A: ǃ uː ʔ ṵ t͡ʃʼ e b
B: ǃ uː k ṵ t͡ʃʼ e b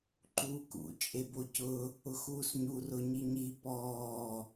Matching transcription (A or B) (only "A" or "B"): B